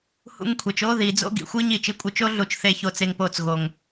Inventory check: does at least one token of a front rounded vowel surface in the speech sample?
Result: no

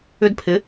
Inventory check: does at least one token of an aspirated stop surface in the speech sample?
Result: yes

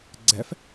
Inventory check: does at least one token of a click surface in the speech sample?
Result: yes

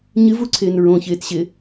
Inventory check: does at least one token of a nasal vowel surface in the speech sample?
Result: yes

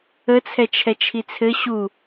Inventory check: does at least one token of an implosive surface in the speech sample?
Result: no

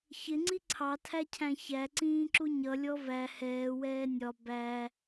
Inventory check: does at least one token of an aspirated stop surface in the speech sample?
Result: yes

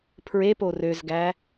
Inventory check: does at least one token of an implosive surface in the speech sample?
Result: no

